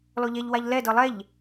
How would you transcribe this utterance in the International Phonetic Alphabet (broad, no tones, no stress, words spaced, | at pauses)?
lɔʎɛʎwaʎ lɛdɤ lˠɛʎ